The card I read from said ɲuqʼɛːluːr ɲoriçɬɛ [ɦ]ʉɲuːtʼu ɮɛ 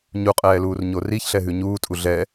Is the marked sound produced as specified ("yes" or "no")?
yes